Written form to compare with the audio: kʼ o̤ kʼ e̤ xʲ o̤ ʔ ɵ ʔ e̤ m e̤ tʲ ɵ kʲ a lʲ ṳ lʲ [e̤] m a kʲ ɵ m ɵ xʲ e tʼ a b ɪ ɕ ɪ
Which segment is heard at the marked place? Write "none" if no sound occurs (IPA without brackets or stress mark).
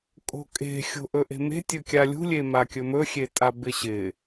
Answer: e